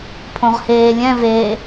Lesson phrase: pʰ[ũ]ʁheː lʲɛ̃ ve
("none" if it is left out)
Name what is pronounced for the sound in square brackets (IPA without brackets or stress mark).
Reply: õ